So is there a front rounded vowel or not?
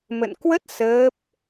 no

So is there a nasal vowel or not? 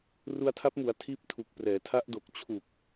no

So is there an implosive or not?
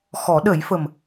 yes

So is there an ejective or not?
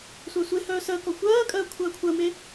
yes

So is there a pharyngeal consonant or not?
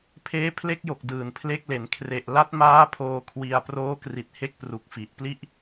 no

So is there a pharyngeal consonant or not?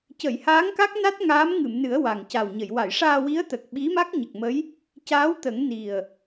no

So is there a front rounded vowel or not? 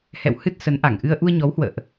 no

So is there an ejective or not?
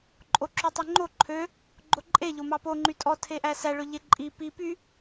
yes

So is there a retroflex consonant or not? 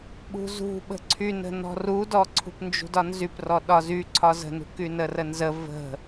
no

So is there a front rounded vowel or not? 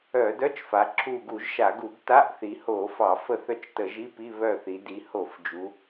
yes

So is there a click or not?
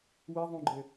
yes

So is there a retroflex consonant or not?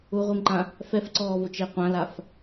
no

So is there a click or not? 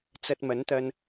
no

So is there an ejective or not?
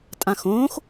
yes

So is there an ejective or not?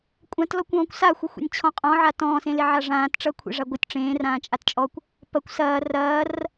yes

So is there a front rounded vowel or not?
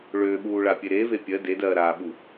yes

